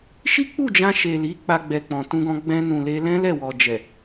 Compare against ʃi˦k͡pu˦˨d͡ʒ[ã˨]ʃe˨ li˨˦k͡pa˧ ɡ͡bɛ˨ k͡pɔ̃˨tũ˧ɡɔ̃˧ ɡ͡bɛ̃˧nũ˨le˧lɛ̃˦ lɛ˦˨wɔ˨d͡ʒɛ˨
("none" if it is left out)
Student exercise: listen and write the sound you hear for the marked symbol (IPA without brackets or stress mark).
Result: ã˧